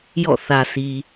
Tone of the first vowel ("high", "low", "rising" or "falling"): falling